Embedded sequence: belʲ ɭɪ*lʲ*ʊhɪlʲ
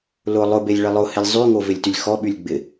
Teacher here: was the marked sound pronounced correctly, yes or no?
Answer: no